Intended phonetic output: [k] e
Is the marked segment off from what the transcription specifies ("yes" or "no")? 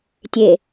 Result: yes